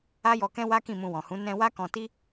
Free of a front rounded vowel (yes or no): yes